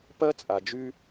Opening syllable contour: high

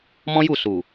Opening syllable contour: high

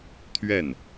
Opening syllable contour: falling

